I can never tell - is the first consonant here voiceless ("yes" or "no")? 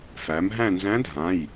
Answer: yes